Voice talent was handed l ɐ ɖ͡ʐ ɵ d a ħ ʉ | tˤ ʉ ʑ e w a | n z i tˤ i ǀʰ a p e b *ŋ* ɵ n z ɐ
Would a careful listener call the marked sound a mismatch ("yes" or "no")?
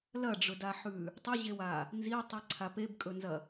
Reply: yes